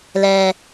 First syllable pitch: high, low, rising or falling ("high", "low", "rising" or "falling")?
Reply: low